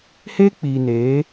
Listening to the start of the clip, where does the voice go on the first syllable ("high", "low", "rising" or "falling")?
high